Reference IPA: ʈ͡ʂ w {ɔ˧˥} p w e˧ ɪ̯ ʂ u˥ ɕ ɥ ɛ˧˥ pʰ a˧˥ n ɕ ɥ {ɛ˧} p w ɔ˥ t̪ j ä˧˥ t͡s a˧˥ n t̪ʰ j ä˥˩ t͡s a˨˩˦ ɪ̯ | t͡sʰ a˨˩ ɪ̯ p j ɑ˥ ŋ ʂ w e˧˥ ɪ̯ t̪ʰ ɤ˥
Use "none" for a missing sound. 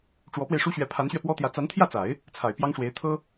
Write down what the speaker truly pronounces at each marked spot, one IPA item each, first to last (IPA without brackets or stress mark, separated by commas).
ɔ˧˥, ɛ˧